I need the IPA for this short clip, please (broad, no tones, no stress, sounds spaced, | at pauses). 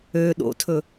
ø ɗ o̰ tʰ ɵ